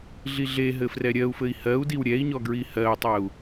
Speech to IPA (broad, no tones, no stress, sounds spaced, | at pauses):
ɮ i ɮ e ɦ ɘ f r ɛ ɾʲ ɜ u̯ f ɘ i̯ h ɜ u̯ d i w ɾʲ ɛ i̯ ɲ ɔ ɡ ɹ i h ɜ u̯ tˤ ɜ u̯